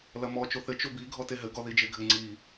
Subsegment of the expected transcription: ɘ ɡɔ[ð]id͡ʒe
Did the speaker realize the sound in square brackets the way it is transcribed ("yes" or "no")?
yes